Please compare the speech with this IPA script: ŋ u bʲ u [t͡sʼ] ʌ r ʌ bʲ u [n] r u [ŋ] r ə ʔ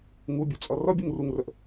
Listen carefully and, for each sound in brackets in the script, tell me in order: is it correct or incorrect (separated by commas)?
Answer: correct, incorrect, correct